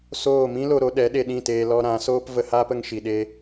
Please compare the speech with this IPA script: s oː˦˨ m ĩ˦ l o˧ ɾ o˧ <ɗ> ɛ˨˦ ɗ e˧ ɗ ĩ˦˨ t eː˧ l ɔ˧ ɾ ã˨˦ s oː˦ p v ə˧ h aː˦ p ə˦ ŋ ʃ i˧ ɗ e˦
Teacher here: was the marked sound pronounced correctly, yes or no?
yes